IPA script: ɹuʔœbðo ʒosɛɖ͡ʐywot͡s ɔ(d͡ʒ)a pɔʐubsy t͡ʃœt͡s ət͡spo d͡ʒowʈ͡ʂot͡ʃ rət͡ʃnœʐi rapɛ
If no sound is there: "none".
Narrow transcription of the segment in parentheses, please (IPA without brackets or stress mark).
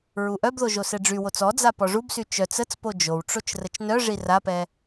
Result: d͡z